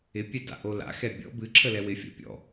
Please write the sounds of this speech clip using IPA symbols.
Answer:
ɪ pʲ ɛ d a̰ ʔ o l a̰ x ɛ bʲ ɔ̰ b ɨ ǁʰ ə l ɛ w ɪ fʲ ɔ̰ pʲ ɔ̰

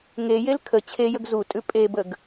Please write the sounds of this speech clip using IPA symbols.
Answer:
ŋ e j e l kʰ ə t͡ɕʰ e j ə ɡ z u tʼ ʉ pʼ e b ə ɡ

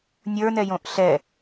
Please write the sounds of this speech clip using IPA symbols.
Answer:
nʲ ə˞ n ɛ j õ ʔ ɬ ɛ

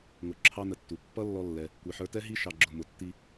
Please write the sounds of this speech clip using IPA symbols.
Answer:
ŋ ʊ˧ ǁʰ ɑ˦ n ə˧ tː u˨ pː ʌ˦ lː ɔ˦ lː ɛ˧ | kʷ i˨ ħ ə˞˧ t ɛ˦ ɦ i˦ ʃ ɑ˧ ɡ͡ǁ ʊ˧ m ʊ˨ tː i˧

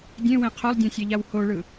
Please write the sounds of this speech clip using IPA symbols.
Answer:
dʲ ẽ w ẽ qʰ o lˠ dʲ ɛ̃ sʲ ɛ ʎ a w h o ɭ ɯ

